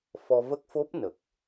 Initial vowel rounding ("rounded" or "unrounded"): rounded